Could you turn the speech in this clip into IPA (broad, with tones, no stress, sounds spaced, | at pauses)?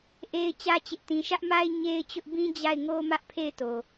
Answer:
ʔ e˦ ɪ̯ t͡ɕ ä˦ t͡ɕ ɪ˦ ʔ t ĩ˦ ʃ ä˦ ʔ m a˦ ɪ̯ ɲ e˦ ɪ̯ t͡ɕ ʊ˦ ʔ b ĩ˦ d͡ʑ a˦˨ ɪ̯ ŋ o˦ m ä˦ ʔ pʰ e˦˨ ɪ̯ t o˨